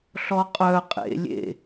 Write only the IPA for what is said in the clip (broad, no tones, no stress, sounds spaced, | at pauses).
ɬ ɔ qʼ œ qʼ ḛ lʲ ḛ